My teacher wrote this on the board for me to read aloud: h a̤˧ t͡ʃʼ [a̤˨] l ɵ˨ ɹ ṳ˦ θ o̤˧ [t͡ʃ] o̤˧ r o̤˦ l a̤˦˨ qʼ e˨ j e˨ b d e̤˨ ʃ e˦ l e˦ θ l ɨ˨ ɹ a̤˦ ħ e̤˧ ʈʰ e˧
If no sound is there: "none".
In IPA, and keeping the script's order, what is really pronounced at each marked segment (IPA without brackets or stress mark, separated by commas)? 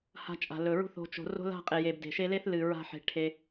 a̤˨, t͡ʃ